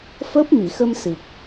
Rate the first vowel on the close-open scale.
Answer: mid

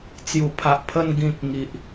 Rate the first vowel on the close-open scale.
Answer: close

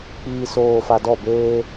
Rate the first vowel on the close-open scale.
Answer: close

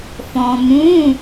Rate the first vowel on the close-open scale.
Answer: mid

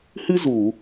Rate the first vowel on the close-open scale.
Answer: close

